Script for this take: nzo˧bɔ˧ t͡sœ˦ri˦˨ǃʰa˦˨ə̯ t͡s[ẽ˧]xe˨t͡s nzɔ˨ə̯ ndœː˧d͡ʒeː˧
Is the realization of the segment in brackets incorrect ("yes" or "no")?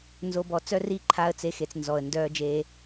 yes